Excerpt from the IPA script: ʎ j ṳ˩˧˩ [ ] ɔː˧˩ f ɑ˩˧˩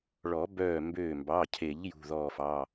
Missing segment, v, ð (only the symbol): ð